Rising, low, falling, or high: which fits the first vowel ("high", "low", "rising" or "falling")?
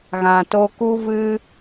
low